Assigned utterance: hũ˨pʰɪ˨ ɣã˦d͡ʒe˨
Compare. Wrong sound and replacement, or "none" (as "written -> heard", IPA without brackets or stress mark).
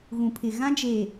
h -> ɣ